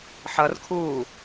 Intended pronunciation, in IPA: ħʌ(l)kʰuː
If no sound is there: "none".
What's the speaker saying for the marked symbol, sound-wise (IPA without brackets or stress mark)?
r